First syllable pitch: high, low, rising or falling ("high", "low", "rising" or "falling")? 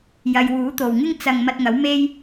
low